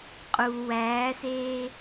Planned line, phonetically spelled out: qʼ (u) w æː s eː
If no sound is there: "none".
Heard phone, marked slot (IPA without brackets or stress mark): u